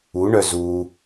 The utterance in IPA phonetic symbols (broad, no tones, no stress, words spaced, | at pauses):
uɳœ zu